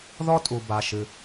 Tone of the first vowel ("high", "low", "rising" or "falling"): high